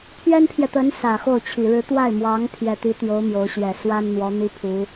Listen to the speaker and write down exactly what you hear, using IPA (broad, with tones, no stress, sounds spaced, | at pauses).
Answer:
pʰ ɥ ɛ˥ n pʰ j ɛ˨ t̪ ə˧˥ n s ä˨˩ x o˥˩ ʊ̯ t͡ɕʰ i˨˩ ɻ ɻ̩˧˥ t̪ w a˥˩ ɪ̯ m w ɑ˧˥ ŋ pʰ j ɛ˨˩ t̪ i˧˥ t̪ j o˧˥ ʊ̯ m j o˧˥ ʊ̯ ɕ ɥ ɛ˨˩ s w a˥ n n̪ w ɔ˧˥ n̪ i˥ pʰ u˧˥